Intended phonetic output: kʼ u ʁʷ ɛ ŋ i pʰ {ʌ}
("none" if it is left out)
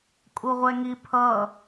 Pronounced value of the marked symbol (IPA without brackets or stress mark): ʌ